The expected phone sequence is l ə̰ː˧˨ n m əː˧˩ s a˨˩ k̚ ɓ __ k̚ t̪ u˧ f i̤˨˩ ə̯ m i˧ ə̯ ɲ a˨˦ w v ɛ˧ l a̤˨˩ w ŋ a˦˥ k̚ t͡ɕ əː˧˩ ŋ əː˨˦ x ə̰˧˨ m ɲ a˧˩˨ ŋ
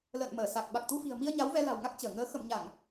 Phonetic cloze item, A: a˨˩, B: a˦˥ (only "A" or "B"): A